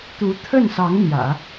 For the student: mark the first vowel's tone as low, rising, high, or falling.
rising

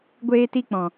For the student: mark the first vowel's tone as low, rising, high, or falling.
high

